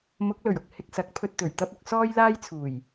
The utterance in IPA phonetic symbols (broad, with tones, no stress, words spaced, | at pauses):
mʊ˨˥k̚lɵ˨˩ɥʊ˧k̚ hɪ˧k̚sɐ˨˥k̚pʰɵ˧t̚ t̪ɵ˨˩ɥt̪ɐ˥p̚ ʊ˧k̚sɔː˥j laː˥jt͡sʰuː˨˩j